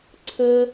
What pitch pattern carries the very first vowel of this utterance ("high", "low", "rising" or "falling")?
high